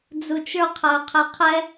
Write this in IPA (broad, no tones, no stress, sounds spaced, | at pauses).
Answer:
d͡z u t͡ʃ ə˞ qʰ ɐ ʊ̯ qʰ ɛ qʰ ɛ